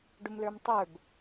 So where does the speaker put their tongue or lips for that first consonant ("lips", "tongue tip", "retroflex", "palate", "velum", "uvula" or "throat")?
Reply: retroflex